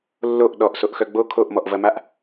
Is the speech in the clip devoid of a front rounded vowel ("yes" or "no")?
no